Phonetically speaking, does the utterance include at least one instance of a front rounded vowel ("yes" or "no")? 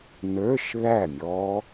no